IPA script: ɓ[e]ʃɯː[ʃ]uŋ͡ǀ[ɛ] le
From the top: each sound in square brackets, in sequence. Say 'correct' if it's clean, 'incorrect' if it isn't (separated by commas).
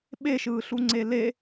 correct, incorrect, incorrect